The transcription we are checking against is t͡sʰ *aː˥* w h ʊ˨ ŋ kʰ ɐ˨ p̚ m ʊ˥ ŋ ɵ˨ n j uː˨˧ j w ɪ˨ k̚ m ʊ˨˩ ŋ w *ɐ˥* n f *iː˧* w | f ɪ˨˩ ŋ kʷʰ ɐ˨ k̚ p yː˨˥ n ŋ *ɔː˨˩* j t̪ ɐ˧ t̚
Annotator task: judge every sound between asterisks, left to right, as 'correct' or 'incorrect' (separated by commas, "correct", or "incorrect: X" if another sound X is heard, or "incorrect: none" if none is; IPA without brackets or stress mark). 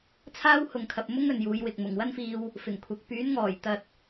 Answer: correct, correct, correct, correct